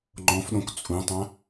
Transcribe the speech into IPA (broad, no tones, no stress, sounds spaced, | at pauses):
ŋ͡ǃ ɔ̃ f ɗ õ k t͡sʼ ũ tˤ ã